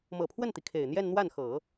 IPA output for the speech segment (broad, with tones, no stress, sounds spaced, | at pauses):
m ɤ˨˩ pʰ w ə˥˩ n t̪ i˩ kʰ e˨˩ ɪ̯ n̪ j ɛ˥˧ n n̪ w a˥˩ n x ɤ˨˩˦